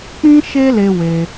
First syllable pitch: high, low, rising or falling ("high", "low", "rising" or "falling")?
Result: high